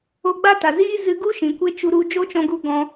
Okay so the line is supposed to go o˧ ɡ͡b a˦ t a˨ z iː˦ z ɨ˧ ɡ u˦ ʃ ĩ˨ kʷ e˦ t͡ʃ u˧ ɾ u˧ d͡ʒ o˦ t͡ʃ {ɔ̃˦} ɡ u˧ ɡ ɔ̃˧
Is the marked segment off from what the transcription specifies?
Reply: yes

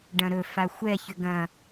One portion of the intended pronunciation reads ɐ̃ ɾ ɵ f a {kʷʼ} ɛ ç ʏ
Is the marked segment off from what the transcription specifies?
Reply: yes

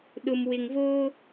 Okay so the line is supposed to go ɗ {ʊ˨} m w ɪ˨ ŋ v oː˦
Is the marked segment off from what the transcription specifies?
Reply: no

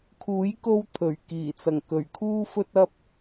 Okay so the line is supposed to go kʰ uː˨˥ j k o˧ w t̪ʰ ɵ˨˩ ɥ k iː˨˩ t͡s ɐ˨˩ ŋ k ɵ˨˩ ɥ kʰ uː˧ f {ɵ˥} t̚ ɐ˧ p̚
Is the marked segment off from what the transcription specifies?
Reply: yes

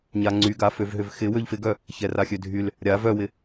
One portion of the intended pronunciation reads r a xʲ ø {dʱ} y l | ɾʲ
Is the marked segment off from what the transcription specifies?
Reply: no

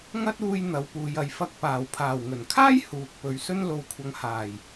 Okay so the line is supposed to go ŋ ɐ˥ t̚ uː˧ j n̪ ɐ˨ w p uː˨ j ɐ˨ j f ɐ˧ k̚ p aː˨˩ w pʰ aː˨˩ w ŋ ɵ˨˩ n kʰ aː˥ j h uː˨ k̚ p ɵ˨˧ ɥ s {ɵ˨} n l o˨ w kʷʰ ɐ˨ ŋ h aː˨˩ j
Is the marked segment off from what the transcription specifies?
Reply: yes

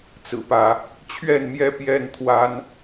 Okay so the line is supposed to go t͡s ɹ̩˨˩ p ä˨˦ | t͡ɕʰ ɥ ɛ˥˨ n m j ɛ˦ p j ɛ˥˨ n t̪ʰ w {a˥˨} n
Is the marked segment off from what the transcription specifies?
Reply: yes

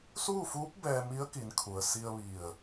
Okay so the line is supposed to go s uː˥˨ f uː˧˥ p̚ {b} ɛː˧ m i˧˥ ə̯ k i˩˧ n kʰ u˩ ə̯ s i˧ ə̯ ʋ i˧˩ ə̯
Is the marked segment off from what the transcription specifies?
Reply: no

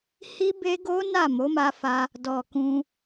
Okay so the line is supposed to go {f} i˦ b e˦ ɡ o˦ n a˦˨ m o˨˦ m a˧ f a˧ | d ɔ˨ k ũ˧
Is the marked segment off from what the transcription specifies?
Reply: yes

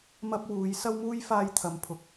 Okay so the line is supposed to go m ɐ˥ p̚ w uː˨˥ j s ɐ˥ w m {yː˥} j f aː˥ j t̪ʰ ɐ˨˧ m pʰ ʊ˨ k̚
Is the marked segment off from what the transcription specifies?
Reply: yes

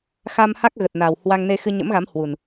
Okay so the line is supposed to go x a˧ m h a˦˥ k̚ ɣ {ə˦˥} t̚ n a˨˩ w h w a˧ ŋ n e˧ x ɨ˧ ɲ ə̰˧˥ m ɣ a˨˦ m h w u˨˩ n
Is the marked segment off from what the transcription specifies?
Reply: yes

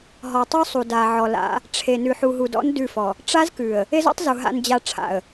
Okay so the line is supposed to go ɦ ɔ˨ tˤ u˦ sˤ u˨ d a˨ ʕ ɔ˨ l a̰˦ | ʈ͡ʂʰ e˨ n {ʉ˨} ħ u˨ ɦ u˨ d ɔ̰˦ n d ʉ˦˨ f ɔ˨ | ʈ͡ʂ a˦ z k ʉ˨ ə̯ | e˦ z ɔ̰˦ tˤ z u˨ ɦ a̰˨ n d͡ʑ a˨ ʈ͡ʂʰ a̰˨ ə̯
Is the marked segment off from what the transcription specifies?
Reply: no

